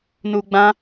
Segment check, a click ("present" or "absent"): absent